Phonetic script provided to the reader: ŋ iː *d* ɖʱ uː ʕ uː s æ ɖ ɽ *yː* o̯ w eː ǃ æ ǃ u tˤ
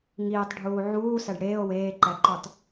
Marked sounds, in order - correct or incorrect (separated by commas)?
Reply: incorrect, incorrect